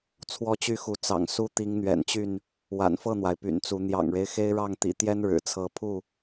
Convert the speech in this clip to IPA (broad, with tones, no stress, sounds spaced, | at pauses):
t͡sʰ w ɔ˦ t͡ɕ y˥˨ x u˨˦ t͡s ɑ̰˨˩ ŋ s u˦ t̪ i˨˦ ŋ n̪ ɥ ɛ̰˨˩ n t͡ɕ y˥˨ n | w a̰˨˩ n f ɤ˥˨ n̪ w a˩ ɪ̯ p y̰˨˩ n t͡s u˨˦ n̪ j ɑ̰˨˩ ŋ ɻ e˦ ɪ̯ x e˦ ɪ̯ ɻ ɑ˥˨ ŋ t̪ ḭ˨˩ t̪ j ɛ˦ n ɻ ɻ̩˨˩ t͡sʰ ɤ˨˦ pʰ u˥˨